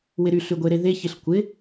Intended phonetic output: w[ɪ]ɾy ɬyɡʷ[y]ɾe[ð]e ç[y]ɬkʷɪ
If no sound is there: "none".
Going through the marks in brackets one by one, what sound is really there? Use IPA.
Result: ɪ, e, ð, ɪ

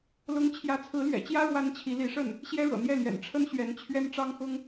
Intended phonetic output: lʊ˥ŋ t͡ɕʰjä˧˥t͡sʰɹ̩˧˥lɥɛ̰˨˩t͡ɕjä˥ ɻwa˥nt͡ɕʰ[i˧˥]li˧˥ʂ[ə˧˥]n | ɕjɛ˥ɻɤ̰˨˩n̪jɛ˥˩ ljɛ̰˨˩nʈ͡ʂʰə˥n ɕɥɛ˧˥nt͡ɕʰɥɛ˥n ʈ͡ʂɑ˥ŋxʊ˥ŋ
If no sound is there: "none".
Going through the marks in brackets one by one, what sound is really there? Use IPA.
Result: i˧˥, ə˥˩

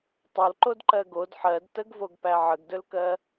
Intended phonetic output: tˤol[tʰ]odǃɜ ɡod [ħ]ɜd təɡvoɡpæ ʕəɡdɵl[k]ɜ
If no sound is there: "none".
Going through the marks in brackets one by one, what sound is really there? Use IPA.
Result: ǃ, ħ, k

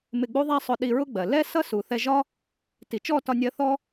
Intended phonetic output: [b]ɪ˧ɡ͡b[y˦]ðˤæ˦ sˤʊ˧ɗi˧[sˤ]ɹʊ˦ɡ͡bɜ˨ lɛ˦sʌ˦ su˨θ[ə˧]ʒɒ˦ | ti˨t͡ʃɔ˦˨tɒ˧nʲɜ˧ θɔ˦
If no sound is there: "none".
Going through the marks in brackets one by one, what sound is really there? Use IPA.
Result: m, u˦, none, ɛ˧

